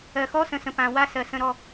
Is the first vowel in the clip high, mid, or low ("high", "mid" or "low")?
mid